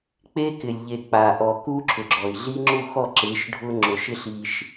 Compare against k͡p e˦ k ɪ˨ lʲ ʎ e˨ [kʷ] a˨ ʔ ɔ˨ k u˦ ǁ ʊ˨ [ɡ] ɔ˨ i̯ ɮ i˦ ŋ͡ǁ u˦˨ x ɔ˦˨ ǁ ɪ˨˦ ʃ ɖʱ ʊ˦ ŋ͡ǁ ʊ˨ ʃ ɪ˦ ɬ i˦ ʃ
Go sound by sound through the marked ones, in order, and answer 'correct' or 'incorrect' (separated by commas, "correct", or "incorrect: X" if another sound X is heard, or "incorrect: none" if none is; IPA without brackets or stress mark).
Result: incorrect: k͡p, incorrect: ɡ͡ǁ